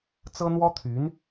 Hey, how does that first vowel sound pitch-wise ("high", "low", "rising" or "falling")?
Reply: high